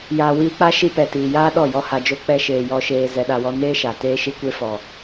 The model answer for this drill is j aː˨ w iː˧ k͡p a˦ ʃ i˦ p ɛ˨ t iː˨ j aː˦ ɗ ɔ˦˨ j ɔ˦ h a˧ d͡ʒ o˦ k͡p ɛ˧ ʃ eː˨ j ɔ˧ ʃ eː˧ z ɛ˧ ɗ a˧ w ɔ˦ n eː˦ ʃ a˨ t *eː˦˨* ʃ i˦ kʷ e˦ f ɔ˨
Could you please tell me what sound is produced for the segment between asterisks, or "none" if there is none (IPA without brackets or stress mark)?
eː˦